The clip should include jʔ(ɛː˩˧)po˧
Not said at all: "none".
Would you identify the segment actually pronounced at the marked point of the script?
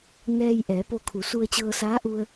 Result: ɛː˩˧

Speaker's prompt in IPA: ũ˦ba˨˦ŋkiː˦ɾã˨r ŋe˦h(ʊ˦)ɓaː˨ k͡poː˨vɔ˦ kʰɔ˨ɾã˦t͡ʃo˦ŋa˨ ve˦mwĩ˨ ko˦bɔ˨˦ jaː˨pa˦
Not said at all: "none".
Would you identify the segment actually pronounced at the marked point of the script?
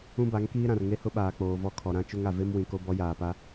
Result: ʊ˦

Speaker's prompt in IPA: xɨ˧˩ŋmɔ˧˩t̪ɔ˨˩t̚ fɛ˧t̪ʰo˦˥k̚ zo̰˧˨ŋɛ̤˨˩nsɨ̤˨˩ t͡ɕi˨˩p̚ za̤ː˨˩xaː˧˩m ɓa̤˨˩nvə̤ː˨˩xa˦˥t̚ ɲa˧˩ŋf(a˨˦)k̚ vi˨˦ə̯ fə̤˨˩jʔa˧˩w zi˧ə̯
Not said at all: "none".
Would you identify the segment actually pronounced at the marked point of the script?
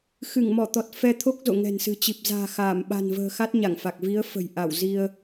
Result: a˨˩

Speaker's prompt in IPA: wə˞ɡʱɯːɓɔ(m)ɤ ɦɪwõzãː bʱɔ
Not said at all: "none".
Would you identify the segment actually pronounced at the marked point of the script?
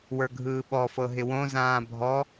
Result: f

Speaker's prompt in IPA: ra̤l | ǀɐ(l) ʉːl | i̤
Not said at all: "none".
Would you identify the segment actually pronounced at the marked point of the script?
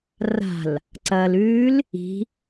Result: l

